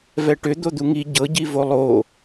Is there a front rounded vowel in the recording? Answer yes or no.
yes